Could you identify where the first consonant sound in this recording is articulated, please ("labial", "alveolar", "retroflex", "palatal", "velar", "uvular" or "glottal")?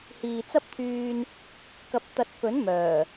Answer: glottal